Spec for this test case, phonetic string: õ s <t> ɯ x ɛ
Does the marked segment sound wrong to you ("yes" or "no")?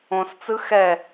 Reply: yes